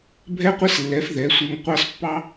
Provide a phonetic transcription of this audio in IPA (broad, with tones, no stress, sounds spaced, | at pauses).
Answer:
bʱ ɛ˦ qʷ ɛ˦ s lː ɛ˨˦ f ð ɛ˨˦ sʷ e˧ ŋ qʷ ɑ˦ s pː ɑ˦